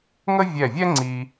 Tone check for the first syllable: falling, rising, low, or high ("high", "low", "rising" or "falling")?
high